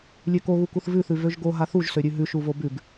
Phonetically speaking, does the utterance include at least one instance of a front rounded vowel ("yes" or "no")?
yes